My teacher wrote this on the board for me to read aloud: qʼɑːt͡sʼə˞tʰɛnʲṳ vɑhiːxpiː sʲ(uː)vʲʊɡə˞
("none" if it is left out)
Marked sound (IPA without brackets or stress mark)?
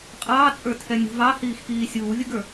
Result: uː